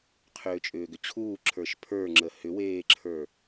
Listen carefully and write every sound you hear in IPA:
qʰʏːt͡ʃʼʏːɡʏt͡ɕʰuː ǁʰə˞ʃpʰə˞ŋ͡ǁə hʏweːǁʰə˞

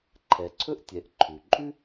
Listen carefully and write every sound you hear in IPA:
ǃʰɛ˩ǀʰɵ˥ʔtʲɛ˩ʔ ǃʰʉ˩ ǃʼʉ˥

